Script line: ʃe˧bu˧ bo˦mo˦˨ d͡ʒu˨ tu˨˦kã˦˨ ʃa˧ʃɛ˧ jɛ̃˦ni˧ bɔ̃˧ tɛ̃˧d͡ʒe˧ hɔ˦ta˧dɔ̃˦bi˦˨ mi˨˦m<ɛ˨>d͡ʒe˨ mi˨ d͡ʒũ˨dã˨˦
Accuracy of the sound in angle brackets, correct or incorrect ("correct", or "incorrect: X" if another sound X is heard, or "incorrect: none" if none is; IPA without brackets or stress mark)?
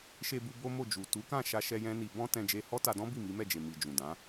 incorrect: ɛ˦˨